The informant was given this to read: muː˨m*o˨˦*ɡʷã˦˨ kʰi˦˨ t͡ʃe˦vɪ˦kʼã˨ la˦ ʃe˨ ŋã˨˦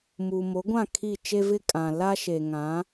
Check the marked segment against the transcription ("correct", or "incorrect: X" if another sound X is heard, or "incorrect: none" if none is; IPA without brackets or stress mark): correct